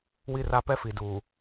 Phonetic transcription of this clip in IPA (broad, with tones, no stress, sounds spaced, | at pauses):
w i˦˨ r a˦ p ɛ˦ f i˨ d uː˨